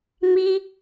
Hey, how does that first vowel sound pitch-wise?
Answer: high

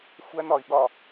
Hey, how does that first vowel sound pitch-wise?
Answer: high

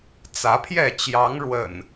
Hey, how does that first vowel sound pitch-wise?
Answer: rising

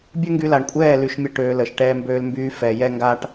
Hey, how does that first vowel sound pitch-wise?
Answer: high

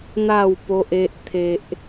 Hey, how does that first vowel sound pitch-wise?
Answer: falling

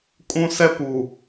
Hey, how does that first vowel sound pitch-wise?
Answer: high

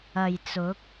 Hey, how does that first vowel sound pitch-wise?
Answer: low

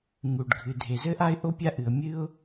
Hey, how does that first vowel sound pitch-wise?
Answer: low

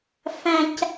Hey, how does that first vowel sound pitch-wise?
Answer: high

